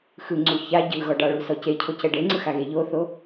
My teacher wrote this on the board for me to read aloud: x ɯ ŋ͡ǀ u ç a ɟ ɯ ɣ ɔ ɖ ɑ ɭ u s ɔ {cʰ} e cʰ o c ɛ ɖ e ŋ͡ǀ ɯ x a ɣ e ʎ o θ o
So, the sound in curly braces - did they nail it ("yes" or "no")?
no